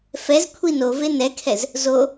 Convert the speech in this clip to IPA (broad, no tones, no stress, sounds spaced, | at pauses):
f ɛ z kʷʰ i n o v e n ɛ kʰ ɛ z | z o